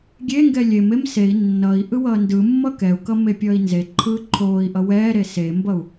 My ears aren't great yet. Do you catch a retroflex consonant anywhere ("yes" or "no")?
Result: no